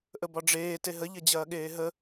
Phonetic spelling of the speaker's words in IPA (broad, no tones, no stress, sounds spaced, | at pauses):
ʔ ə b ɒ ɖ͡ʐ eː t e ɦ ə ʎ ɐ d͡ʑ ɐː ɠ eː ɦ ə